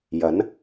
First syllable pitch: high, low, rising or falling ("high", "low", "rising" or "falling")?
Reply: rising